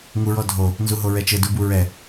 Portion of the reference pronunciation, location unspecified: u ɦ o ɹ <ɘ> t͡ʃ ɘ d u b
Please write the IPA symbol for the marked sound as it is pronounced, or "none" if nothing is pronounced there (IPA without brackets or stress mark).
ɛ